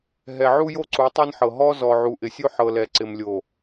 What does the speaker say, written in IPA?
ɦɛ˨ʕu˦jo˦ ǀu˨˦tˤɤ˦nħɤ˨ ɦɔ˦ zɔ˨ʕu˨ ʔɪ˨sʲo˦ħɤ˨lɛ˨ ǀɪ˨mlʲo˨

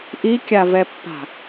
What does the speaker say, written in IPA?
ʔikʲavɛpːa̤

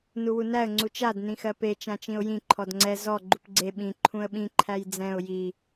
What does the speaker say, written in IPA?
nuwunæə̯ ŋ͡ǀut͡ʃad nĩxɜpe t͡ʃãt͡ʃĩʊ̯jĩ ǃʰɔdŋ͡ǀɛ zɔ ɡ͡ǃupɡ͡ǀe ɓĩ ǃʰũə̯ɓĩ ǃʰæjd͡zɛ̃ʊ̯ ji

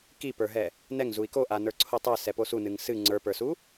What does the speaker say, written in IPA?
kipə˞ɦɛ | nɛŋ zui̯koʔa nə˞ǀʰotˤə˞ sɛposunɨŋ sɨ ŋ͡ǀə˞pə˞su

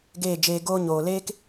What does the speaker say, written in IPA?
ɡeː˦˨d͡ʒeː˧ɡoː˦ ɲoː˨leː˦k

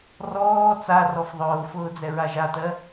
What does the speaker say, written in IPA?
rɔː t͡sarɔf ðˤʊːfʊː d͡zɛɹaʒatɜ

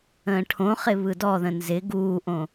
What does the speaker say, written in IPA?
ə̃ːʈʰõχɪ βɯdɔðə̃ nzɪ ɡuːʔõ

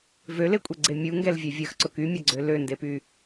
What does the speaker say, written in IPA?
vølekʷʼeɡ͡ǀe mʲuŋɡɛlvʲɛ vʲɐxǀʊk ymʲɐɡ͡ǀø løndepy

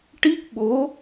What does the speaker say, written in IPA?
ʈi˦˥k̚ɓo˧˥

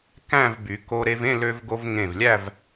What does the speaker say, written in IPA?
kæ̃˥˧v by˩˧ko˧ ɾe˧vẽ˥˧lø˧vɡo˧v ŋẽ˧˩vlʲæ˥˧v

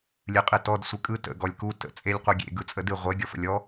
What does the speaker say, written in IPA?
lʲɨqʼɨtɔd sʷɨkʼɯ tə̰ ɡɔlʲku tə̰ t͡sʼelʲqʷɯɡʲḛ ɡɯt͡sʼədɨ ʁʷe ɡʲɔfə̰lʲɔ

